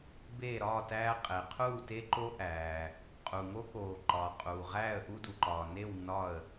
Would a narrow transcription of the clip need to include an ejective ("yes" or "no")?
yes